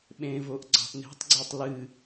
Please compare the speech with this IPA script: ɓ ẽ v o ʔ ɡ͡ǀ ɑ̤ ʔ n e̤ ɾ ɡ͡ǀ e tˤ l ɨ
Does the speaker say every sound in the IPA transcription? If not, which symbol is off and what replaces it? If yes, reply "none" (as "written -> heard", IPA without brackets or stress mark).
ɾ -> tˤ